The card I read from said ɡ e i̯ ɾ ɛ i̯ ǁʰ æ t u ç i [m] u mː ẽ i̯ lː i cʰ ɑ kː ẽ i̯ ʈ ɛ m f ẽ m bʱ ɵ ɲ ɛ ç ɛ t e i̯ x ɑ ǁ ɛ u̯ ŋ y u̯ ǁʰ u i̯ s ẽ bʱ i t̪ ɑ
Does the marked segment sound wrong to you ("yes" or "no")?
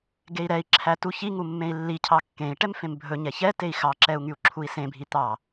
yes